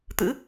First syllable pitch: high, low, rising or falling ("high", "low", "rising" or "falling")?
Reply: rising